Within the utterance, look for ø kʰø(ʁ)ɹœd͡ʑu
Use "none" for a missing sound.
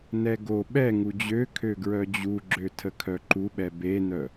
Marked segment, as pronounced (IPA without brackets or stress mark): ɡ